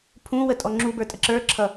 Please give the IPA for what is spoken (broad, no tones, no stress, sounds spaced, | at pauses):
pʰ ũ w ə tʼ ɔ ŋ͡ǁ u b ə˞ tʼ ə ǁ ə˞ ǁʰ ʌ